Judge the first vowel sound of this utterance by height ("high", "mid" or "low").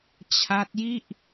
low